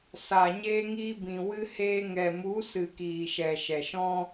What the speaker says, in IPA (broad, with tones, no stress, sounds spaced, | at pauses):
s a˨ ɲ eː˧ ŋ iː˧ b ĩ˨ w ɨ˧ h eː˧ ŋ ɛ˨ m u˨˦ s ɨ˨ k iː˨ ʃ ɛ˨ ʃ ɛ˨ ʃ ɔ̃˦